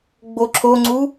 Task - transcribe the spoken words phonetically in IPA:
ɡ͡b o ǁʰ o ŋ͡ǀ u

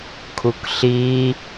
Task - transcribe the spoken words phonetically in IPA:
kʰ u k ɬ i

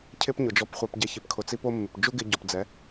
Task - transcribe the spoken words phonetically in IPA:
cʰ ɪ˦ p ɲ ʊ˨ d͡ʒ ɔ˧ p χʷ a˧ p ɟ ɛ˧ ç ɪ˨˦ p kʰ ʊ˨ t͡s i˧ p o˧ mː ɪ˨ p d͡ʒ u˦ ɡ ɪ˧ ɟ ɔ˨ p d͡z ɛ˨˦

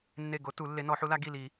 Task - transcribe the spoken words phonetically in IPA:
nː e˧˩ ɡ o˨˦ t u˨˩˦ lː e˨˦ n ɔ˨˩˦ ħ u˨˦ l a˨˦ ɡ i˧˩ l i˨˩˦

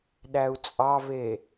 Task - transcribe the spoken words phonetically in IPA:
ɗ æ u̯ t͡sʼ ɑ v e

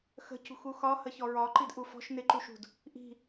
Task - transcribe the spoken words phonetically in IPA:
x ə̤ c ṳ x u x ɒ h ə ç ɔ ɹ ɒ ǃ i d ʔ u f ɔ̤ ʃ n ɪ ǃ u ʃ ṳ d | ʔ i̤

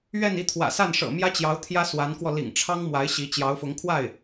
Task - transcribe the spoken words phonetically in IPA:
ɥ ɛ˥˧ n i˥˩ t̪ʰ w ä̰˨˩ s a˥˩ n ʂ ɤ̰˨˩ m j ä˥ t͡ɕ j ɑ˧˥ ʊ̯ t̪ʰ j ä˥ s w a˧˥ n k w ɔ˧ l ḭ˨˩ ŋ ʈ͡ʂʰ ɑ˥ ŋ m w a˧˥ ɪ̯ ɕ i˧˥ t͡ɕ j ɑ˧˥ ʊ̯ f ʊ˧˥ ŋ kʰ w a˥˩ ɪ̯

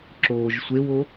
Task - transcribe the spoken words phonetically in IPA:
ǁ oː ʒ sʷ e w o

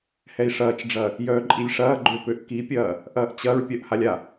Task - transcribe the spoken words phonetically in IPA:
h ɛ i̯ ʂ ɐː t͡ʃ ɖ͡ʐ ɐː | j œː ǃʼ i lʲ ʂ ɐː ɡ͡ǃ ø p ø ʔ k i pʲ ɐː | ʔ ɐː ʔ t͡ɕ ɐ ɹ pʲ œ ʔ h a lʲ a

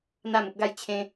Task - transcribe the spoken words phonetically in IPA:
n̪ a˥˧ m ə˦ p̚ ɡ a˥˧ j t͡ɕʰ ẽ˦

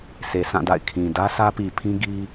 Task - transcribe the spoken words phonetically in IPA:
s e˨ s ã˦˨ d a̰˦˨ ɪ̯ kʰ ĩ˨ d ä˦ sʰ ä˦ p i˨ pʰ ĩ˦ ɡ i˦

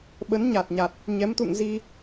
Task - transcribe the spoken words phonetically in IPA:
ɓ ə˨˦ n ɲ a˨˩ t̚ ɲ a˨˩ t̚ | ɲ ɛ˨˦ m t̪ ṵ˧˨ ŋ z i˧

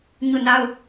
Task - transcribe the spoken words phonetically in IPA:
ɲ u˦˨ n a˦ ʊ̯

